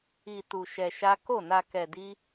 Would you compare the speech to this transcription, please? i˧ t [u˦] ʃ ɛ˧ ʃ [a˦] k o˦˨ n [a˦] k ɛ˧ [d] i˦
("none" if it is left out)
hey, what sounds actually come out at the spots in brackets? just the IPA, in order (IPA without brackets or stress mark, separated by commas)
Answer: u˧, a˦, a˧, d